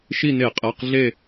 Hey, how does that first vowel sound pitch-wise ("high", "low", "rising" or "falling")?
falling